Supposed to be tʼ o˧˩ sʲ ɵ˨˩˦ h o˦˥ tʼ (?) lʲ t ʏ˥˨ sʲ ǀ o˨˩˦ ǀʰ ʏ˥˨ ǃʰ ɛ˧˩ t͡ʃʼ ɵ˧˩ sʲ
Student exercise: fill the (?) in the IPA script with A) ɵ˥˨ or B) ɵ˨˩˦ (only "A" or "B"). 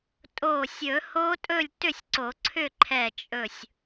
A